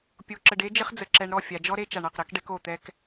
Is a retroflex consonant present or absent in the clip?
present